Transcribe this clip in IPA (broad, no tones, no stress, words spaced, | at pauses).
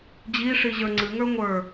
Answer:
d͡ʑi ʂiʑə˞ŋ͡ǀɨ ŋə˞ŋʷə˞